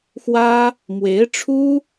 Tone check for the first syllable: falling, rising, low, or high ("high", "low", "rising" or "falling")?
high